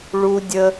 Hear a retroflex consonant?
yes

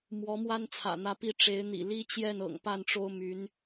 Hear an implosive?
no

